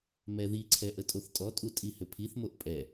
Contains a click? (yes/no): yes